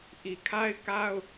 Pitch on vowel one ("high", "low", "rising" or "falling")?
low